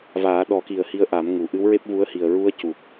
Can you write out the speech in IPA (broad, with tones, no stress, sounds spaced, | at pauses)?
v aː˨˩˦ ɗ ɔ˨˩˦ k i˨˩ ə̯ h i˧ ə̯ ʔ a˨˩˦ m ŋ u˨˩˨ ʔ ɨ˧˥ w ɹ e˦˥ p̚ v u˧˥ ə̯ h i˨˩ ə̯ ɹ u˧˥ ə̯ c u˨˩ k̚